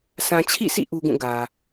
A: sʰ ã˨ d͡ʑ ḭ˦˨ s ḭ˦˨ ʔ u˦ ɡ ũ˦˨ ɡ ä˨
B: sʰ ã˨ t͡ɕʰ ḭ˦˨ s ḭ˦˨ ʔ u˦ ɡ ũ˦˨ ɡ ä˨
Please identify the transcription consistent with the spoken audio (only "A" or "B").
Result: B